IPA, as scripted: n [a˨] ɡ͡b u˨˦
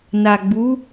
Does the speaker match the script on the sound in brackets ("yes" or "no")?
yes